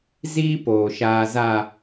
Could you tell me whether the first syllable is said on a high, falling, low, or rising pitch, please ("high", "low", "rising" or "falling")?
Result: high